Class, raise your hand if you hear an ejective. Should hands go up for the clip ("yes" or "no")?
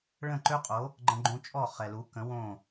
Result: yes